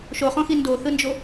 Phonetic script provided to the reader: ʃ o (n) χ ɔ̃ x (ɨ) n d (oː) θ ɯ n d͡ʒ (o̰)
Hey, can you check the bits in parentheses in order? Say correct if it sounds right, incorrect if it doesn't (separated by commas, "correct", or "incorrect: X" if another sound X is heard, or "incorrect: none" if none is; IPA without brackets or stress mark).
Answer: incorrect: none, incorrect: i, incorrect: o, incorrect: o